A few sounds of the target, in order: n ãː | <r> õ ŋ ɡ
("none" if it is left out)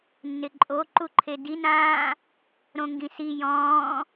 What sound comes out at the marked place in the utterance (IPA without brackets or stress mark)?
ɾ